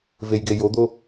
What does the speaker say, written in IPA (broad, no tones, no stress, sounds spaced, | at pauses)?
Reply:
v e j ɡ e j o d̪ o